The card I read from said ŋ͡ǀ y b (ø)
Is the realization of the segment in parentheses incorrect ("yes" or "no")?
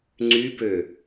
no